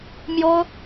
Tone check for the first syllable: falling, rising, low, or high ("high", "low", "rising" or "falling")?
high